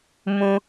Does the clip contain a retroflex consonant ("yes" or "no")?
no